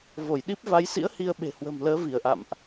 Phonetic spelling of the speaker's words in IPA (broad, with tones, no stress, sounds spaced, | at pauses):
v o˧˩ j ɗ i˦˥ p̚ v a˨˦ j s ḭ˧˥ ə̯ h i˧ ə̯ ɓ e̤˨˩ h w ə̤˨˩ m l əː˨˦ v i˧˩ ə̯ ʔ a̰˧˨ m ʔ